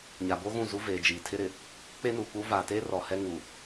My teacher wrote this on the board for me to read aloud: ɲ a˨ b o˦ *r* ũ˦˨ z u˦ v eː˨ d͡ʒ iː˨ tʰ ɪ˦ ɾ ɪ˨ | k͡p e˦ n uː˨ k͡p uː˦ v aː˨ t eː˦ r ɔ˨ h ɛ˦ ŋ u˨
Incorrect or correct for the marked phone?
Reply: incorrect: ɣ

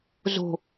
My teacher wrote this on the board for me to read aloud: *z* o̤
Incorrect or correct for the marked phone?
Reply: correct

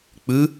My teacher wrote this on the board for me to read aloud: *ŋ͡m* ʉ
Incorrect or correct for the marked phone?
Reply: incorrect: k͡p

